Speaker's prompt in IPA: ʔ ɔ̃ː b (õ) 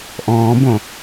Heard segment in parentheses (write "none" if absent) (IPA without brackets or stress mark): õ